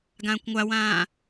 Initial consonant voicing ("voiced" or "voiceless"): voiced